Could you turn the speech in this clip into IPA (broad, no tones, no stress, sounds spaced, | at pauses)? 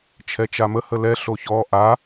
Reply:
t͡ʃʰ ɛ t͡ʃ a m ə h ə l ɛ ɬ o ç ɔ ʔ a